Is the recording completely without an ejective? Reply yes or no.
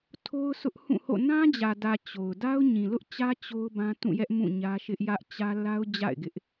yes